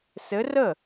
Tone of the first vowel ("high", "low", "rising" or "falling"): rising